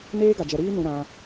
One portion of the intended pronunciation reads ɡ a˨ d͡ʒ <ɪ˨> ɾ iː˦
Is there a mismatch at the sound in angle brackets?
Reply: yes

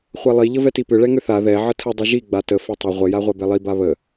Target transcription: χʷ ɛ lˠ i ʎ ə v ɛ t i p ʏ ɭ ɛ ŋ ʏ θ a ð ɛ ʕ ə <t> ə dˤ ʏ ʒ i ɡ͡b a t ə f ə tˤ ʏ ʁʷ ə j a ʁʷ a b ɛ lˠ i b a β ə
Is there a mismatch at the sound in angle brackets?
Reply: yes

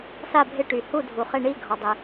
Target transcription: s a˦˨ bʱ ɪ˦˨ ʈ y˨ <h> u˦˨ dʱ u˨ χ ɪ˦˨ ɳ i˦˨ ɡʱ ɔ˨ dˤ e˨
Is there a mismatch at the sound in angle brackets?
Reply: no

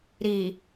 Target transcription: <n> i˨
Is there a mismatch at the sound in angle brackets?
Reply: yes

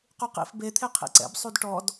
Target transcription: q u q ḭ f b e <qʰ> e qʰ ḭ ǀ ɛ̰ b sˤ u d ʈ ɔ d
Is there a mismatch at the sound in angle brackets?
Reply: yes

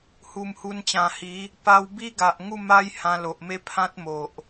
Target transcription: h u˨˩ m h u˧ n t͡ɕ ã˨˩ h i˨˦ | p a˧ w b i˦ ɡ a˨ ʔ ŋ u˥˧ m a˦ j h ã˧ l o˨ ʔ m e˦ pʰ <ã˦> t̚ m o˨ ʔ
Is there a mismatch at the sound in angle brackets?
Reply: no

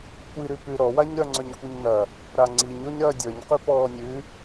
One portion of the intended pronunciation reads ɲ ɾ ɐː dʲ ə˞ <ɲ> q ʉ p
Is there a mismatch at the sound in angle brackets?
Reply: no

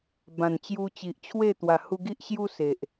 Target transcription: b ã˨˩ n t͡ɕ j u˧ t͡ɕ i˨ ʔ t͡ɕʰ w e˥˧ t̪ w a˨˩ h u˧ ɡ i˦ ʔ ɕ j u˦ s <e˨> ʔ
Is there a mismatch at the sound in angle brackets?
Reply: no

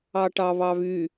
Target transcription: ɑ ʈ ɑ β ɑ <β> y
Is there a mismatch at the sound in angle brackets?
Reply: no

